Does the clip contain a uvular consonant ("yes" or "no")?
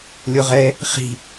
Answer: yes